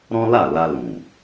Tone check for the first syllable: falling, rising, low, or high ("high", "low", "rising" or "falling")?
high